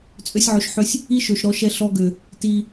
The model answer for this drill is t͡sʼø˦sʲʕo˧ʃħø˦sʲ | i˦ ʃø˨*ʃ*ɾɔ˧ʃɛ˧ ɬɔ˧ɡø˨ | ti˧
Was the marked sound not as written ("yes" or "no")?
no